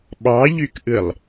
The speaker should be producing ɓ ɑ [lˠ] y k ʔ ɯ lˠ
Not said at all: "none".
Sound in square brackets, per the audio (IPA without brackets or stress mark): ʎ